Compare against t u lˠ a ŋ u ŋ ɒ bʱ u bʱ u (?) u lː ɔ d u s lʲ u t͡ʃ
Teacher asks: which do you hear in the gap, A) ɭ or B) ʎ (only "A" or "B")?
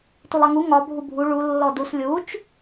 A